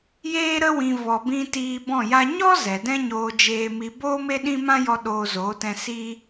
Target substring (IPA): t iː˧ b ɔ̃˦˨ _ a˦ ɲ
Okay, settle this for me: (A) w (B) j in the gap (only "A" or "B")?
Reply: B